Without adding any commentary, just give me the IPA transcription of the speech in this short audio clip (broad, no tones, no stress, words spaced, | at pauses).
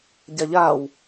ɟaʎaw